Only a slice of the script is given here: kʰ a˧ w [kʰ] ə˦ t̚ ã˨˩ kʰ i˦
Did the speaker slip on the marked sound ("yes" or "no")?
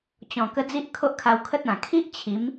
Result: no